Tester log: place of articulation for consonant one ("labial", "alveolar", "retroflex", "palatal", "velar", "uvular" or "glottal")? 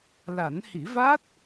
alveolar